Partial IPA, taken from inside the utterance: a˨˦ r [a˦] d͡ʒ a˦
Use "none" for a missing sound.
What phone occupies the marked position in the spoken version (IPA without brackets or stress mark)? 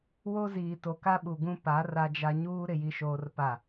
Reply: a˦